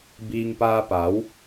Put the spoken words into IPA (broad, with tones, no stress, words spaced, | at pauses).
bi˧ŋpa˧pa˩˧w